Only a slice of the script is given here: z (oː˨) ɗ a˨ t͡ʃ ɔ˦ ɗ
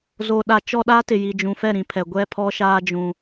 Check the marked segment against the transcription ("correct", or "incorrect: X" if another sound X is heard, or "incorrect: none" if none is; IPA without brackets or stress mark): correct